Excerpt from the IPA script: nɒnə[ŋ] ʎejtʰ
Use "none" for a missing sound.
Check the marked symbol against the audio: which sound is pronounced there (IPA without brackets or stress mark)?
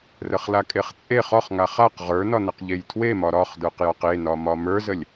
q